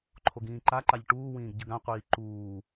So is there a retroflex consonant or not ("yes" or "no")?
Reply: yes